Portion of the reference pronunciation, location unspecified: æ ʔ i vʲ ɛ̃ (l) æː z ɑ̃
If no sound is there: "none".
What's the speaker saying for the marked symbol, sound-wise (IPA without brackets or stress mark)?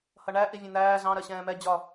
n̪